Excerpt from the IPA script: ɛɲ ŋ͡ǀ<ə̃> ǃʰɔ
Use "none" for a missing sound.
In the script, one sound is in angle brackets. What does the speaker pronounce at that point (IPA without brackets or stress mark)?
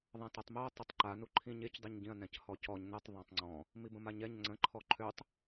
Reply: ə̃